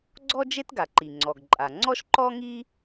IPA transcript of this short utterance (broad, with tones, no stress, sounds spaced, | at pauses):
ɡ͡ǀ ɔ˥ d͡ʒ e˥ t ɡ a˩ ǃ i˩ ŋ͡ǀ ɔ˩ ɡ ǃʼ a˩ ŋ͡ǀ ɔ˥ ʃ ǃ ɔ˥ ŋ i˥